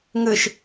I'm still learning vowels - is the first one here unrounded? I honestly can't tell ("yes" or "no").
yes